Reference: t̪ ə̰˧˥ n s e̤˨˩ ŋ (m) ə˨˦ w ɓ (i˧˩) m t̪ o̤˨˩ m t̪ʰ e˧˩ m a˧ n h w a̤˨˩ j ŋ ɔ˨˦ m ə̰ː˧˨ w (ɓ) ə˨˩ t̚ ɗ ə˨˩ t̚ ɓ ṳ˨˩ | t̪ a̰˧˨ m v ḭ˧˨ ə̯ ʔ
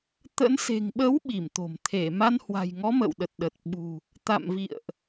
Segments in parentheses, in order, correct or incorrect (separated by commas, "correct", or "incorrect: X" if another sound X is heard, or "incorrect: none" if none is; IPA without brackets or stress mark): incorrect: ɓ, correct, incorrect: ɗ